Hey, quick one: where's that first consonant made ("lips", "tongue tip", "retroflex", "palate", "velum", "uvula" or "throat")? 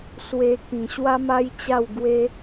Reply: tongue tip